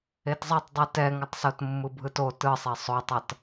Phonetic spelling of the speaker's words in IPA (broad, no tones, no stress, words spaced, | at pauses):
etzˤʌtˤdˤi tɛŋʌtˤ sotmːɯbʱɯto tɯsˤe sˤotˤʌt